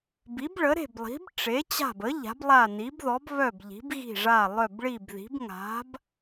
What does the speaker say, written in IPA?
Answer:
bi˨˥bɭə˨˥ɾe̤˦˨blˠi̤˨˥b ʈ͡ʂe˨˥t͡ɕa̤˦˨bə˨˥ ʎa̤˨˥blˠa˦˨ni˨˥bðɔ˨˥b βœ˦˨b ʎi̤˨˥bɣi̤˦˨ʐa˦˨ lˠœ˦˨bɭi˦˨bði̤˨˥b ŋa̤˨˥b

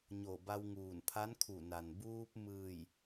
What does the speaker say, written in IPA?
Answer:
ɲo˧˩ ba˧wŋuː˧˩npʰa˧˥nkʰu˧˩ na˩n buː˧p̚ mɯː˧˩j

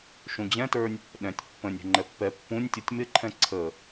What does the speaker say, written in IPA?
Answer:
ʃũd͡ʑɛ̃tə˞nʲ | ɗɛ̃tʲ pːə̃nʲ ɛ̤ŋ͡ǃɛpːɛ pːũnʲtʲutʲ mɪǃʰɛ̃ ǀʰə

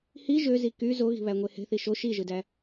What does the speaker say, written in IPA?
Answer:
hi ʒøzi ky zoɣi̤βæŋʷe he̤θi ʃo ʃiʒɯdæ

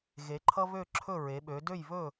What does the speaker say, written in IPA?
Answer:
ɣe˩˥ǃʰʌ˥ βø˥˩ǁʰɵ˥˩ ɹe˩˥ɓø˩˥ dø˥˩jβɵ˥˩

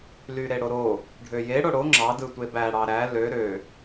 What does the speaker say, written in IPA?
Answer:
lyɾeɽoɾo | ɖʱøje ɽoɽo ŋ͡ǁɑ dɯtʷebæ ɽɑɾæ lø ɾø

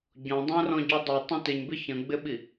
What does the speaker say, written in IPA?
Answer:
ɟɔ̃dˤæ̃rɔ̃ɟɔ dˤutˤə̃ tɪɲbɪ çə̃ɡ͡bɪɓi

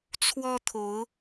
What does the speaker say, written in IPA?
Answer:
t͡sʰwɔ˦t̪ʰo˨˦ʊ̯

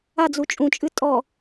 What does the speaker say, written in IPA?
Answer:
ad͡zu t͡ʃʼũt͡ʃʼɨ tʼɔ

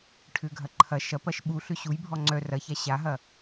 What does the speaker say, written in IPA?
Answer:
ʈʰʏɡʱɐ ǃʰɐ ʃɐpɐʃ ɓuɬʏ ɕujbʱɔ ŋ͡ǀœ rɐça ɕaɦɐ

